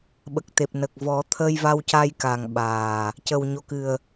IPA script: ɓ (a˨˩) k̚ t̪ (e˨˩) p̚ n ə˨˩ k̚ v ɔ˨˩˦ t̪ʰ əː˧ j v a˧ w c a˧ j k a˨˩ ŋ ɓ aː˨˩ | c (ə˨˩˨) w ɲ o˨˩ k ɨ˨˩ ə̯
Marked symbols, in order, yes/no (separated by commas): no, yes, no